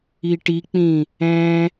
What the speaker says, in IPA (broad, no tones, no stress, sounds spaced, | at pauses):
i ʈ i k͡p ĩ | ɛ̃